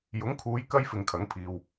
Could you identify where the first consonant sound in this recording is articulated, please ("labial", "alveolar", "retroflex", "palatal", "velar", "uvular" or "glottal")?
palatal